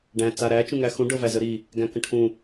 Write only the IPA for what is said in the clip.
ɖ æ̃ t͡s a ɾ æ t͡ʃ ũ ŋ æ x ũ ɖ ɤ v æ z ə ɾ i | ɡ æ̃ k ə̃ ʈʰ ũ

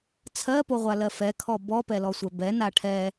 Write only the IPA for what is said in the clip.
t͡sʰ ɜ p o ʁʷ a l ɜ f ɛ kʰ ɔ b ɔ p ɛ l ɔ sʷ ɛ b ɛ n a ʈʰ ɛ

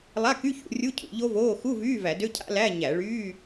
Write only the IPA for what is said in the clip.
lˠ a˧˥˧ k y˧˥˧ ç ṵ˧˩˧ rʲ u˧˥˧ cʰ ṵ˧˩˧ ʎ o˦˥ v oː˧˥˧ x u˧˥˧ v yː˧˥˧ v æ˧˩˧ d ø˧˥˧ cʰ a̰˦˥ l æ˧˥˧ ɲ æ˧˩˧ ɭ yː˧˥˧

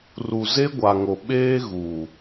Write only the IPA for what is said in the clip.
r u˨ z e˦ ɡʷ a˨ ŋ o˨ ɓ eː˦ ɣ u˨

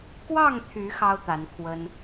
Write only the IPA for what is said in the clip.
k w ɑ˥˨ ŋ t̪ʰ y˨˦ x ɑ˦ ʊ̯ t̪ a˨˦ n kʰ w ə˦ n

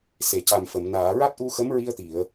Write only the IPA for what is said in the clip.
s e˨˩˨ c a˨˩ m f ə˨˩˨ m n aː˨˩˨ ɹ a˦˥ t̚ ʔ u˧ x ə˧˥ m ɹ i˧ ə̯ t̪ i˨˩˨ ə̯

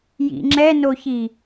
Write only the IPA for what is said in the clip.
j ḭ ŋ͡ǁ ɛ n o ç i

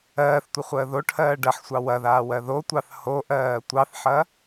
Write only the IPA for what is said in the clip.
ɜː θ tʷ ə χʷ əː ð o ʈʰ ɜː ɖ ɐ ħ sʷ ɑ w ɐ ð aː w ɜ ð o tʷ ɑ θ h o ʔ ɜː tʷ ɑ θ ħ ɐ

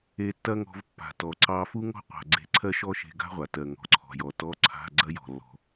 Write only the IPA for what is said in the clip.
e˧ tː ɐ˥ ŋ ɔ̤˧ v pː a̤˩ t ɔ˩ ǀ ɑ˧ f u˥ ŋ ɔ̤˥ qʷ a̤˩ ɡ͡ǀ e̤˧ ǀʰ ɜ˥ ʃ ɔ˥ ʃ e̤˧ ɡ a̤˥ ʁʷ a˩ t ɜ˩ ŋ ɔ̤˩ ǀʰ ɔ̤˩ j ɔ˩ t ɔ˧˥˧ ǀʰ a̤˧˥˧ ɡ͡ǀ ɐ˥ j ɔ̤˩ lː ɔ̤˩

